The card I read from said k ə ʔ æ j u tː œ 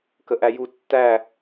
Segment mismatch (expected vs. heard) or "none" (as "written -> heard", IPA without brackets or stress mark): œ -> æ